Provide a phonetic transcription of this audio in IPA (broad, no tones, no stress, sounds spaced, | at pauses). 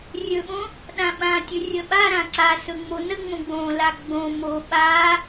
rʲ ɵ ɓ õ | ɗ ã ɓ ã tʲ ɵ rʲ ə ɓ a ɾ ã ǀ a s ɵ ŋ͡m o n ə ŋ͡m õ ɡ͡b õ l a ɡ͡b õ m o ɓ a